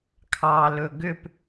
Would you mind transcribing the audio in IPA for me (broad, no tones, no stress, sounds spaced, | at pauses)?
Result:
kʰ ɑ l ɵ ɡ ʏ p